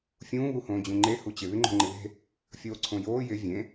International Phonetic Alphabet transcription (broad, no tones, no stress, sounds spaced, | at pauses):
fʲ ũː β u h õː d͡ʑ ũ ŋ͡ǃ e h u t͡ɕ ɪ β ɪ ŋ͡ǃ o̤ ŋ͡ǃ ɪ β e̤ | fʲ oː ǀʰ õ j oː j ɪ vʲ ẽ